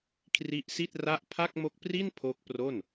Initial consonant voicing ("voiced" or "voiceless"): voiceless